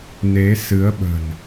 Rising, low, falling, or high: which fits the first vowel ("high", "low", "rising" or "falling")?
rising